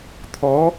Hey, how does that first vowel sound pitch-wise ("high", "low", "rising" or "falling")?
rising